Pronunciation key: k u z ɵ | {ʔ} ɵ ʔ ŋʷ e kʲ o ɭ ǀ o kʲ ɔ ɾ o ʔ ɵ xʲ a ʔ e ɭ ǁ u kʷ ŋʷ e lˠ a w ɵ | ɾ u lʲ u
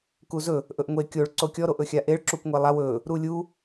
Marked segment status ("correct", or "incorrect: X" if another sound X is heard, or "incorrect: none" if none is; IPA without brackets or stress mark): correct